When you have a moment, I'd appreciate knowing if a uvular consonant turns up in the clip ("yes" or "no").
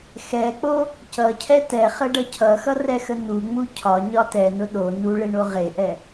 yes